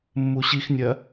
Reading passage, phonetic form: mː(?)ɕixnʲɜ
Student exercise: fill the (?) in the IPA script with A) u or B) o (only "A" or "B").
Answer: A